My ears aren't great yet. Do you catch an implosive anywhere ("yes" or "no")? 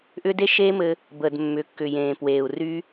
no